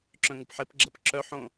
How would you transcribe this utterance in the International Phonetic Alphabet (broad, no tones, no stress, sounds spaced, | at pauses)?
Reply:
ǁ œ̃ ŋ u p ħ e p ɡ͡ǁ ɐ p ǁ œ ħ õ